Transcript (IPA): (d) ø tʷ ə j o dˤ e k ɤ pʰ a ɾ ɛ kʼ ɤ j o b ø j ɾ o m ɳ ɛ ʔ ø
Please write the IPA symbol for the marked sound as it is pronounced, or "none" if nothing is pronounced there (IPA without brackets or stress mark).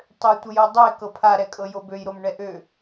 tˤ